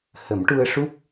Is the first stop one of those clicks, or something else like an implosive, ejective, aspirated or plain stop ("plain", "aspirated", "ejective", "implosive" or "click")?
plain